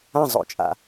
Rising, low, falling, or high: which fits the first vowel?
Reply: falling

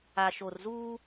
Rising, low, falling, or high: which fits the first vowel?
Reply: low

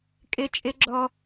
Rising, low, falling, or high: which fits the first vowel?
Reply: high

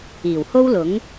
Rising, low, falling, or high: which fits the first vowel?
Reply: low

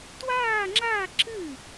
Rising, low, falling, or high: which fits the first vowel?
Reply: falling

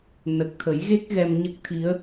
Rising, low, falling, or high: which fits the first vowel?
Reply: low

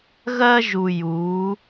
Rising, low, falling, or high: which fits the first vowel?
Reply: high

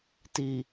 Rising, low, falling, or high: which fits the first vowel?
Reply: low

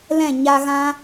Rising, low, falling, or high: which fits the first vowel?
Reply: falling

